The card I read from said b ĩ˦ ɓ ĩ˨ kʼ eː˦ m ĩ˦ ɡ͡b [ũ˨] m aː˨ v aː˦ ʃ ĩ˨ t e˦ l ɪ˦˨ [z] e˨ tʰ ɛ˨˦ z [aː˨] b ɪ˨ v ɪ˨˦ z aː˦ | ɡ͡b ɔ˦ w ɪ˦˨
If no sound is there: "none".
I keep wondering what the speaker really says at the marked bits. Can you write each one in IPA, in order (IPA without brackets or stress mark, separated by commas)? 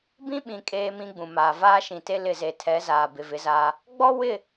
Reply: ũ˨, z, aː˨